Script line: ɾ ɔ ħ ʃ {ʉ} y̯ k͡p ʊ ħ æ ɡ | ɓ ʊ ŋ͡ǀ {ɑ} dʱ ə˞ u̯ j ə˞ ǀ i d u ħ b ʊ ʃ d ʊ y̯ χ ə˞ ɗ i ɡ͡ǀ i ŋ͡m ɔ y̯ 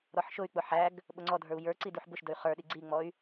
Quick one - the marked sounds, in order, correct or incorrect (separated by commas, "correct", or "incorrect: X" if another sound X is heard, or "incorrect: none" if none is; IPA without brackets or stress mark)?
incorrect: ʊ, incorrect: ɔ